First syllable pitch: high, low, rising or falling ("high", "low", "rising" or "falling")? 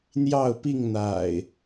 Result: falling